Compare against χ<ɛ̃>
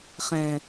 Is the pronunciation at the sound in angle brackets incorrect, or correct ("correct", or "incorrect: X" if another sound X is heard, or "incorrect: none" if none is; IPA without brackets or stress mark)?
correct